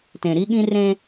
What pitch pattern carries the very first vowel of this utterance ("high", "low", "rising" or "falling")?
low